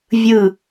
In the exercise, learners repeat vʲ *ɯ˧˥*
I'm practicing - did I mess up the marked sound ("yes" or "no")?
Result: yes